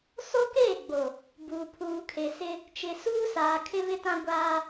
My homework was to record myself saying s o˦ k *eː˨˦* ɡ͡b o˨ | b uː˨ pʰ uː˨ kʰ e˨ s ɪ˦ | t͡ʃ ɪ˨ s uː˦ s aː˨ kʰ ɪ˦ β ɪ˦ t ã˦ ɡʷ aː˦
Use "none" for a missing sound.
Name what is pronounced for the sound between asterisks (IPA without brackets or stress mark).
eː˦˨